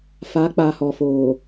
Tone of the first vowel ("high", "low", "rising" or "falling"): rising